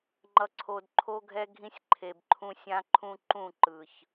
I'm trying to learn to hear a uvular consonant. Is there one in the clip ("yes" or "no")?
no